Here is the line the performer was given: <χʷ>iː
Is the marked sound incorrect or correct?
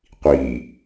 incorrect